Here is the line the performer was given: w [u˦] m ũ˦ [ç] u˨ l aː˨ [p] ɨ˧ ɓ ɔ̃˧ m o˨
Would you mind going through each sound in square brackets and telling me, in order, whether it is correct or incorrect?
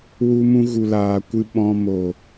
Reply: correct, incorrect, incorrect

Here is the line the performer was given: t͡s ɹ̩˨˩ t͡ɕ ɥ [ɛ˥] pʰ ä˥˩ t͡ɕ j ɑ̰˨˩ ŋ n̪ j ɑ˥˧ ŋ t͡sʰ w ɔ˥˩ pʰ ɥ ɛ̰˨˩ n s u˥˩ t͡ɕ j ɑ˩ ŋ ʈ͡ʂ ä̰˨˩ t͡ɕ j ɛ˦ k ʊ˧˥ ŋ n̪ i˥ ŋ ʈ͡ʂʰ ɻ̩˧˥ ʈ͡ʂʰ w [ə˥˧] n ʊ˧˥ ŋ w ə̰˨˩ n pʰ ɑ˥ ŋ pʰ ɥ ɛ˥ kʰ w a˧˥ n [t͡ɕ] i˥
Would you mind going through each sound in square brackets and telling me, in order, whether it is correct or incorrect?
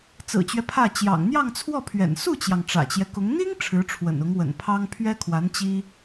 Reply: incorrect, incorrect, correct

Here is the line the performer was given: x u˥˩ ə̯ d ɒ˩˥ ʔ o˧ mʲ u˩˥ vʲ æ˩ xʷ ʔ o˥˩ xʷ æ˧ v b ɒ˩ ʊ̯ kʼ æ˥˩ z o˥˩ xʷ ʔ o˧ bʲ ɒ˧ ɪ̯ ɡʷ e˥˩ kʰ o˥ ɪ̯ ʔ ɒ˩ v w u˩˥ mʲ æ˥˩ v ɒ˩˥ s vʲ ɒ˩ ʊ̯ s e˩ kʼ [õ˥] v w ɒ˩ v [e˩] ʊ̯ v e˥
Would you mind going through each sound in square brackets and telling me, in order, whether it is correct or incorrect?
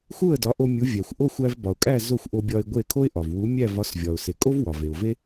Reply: incorrect, correct

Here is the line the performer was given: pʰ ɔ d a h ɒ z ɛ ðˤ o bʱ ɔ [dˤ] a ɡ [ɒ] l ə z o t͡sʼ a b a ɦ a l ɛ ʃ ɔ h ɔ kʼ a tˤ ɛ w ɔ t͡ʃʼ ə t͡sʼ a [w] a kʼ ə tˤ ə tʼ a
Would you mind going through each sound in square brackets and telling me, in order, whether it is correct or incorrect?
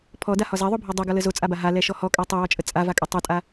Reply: correct, correct, incorrect

